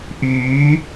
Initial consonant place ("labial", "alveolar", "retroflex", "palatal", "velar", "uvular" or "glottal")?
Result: glottal